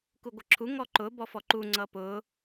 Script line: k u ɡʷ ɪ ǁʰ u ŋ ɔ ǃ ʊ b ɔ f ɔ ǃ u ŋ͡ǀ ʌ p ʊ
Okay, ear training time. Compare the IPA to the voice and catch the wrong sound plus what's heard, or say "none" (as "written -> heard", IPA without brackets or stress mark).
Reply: none